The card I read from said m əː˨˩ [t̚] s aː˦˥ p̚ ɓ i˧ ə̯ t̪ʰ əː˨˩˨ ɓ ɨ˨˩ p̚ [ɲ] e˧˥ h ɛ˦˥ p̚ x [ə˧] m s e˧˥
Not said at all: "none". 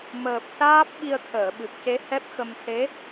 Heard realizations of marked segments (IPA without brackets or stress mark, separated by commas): p̚, c, ə˧